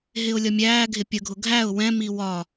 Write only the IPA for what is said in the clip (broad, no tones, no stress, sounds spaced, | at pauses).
ɦ ɪ ʊ̯ lʲ ʌ mʲ æː ɡʱ ɪ pʲ ə ɡʱ ʊ ɡʱ æ ʊ̯ w ɛ̃ m i w ɒ